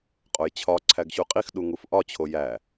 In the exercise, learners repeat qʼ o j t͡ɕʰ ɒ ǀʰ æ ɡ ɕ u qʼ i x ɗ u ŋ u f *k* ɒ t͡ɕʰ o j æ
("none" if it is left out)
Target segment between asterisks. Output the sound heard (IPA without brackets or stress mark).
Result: ʔ